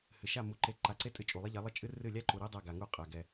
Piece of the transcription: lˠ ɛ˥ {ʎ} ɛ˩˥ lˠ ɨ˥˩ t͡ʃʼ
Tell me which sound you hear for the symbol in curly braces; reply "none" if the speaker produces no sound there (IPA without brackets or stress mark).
ʎ